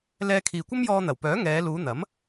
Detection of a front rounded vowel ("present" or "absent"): present